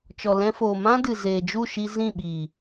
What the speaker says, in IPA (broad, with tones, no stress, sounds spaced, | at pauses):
t͡ʃ ɔ˨ l ɛ̃˧ f oː˨ m ã˦ d ɨ˨ z eː˨ d͡ʒ u˦˨ ʃ i˧ z ĩ˦˨ ɓ iː˨